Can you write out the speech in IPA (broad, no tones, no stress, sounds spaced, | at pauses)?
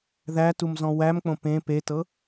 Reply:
ð æ t u m z ɔ̃ w æ m k͡p õ p ẽ p e t ɤ